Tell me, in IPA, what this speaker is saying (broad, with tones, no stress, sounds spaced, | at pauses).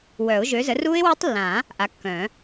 w œ˨˩˦ ʊ̯ ʒ ø˨˥ z ə˨˥ r u˦˥ ɪ̯ w ø˦˥ tˤ lː ã˨˩˦ | ʔ a˨˥ kː œ̃˨˩˦